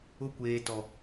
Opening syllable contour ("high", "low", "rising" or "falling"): high